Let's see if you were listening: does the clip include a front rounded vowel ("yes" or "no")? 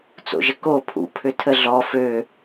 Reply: yes